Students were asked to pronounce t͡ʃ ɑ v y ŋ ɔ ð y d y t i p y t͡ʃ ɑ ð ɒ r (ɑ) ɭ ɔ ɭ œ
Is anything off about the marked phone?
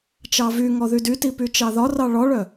no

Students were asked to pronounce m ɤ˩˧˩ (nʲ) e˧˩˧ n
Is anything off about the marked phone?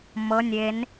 no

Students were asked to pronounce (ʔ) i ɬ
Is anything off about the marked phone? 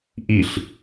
no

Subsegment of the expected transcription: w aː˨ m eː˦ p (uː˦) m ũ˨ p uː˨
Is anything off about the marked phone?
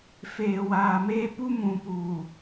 yes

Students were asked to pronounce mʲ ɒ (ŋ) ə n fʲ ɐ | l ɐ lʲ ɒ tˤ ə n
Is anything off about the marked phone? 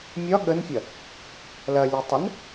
yes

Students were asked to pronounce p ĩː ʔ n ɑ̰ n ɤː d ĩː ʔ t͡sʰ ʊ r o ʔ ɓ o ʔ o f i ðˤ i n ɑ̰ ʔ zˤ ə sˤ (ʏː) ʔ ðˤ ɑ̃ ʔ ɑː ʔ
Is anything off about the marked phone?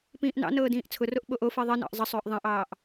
no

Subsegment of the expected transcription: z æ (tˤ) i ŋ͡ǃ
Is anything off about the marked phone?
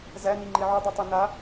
yes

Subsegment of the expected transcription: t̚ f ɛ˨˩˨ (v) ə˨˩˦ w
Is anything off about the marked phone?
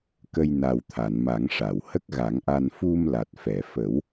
yes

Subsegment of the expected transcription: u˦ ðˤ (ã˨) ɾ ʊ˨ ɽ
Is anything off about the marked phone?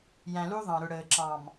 yes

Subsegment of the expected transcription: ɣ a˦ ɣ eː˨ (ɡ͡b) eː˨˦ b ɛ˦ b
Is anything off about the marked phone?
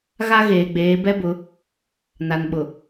no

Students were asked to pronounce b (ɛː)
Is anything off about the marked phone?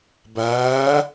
yes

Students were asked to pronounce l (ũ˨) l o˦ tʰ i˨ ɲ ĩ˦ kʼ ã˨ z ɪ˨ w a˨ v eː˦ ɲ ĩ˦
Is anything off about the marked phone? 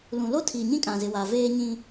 no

